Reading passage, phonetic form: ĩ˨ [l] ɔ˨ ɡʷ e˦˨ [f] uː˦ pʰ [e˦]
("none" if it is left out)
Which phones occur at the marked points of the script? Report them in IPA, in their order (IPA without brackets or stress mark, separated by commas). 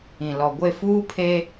l, f, e˦